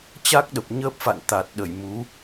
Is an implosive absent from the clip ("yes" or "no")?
no